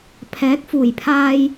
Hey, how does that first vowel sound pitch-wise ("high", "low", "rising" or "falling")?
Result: rising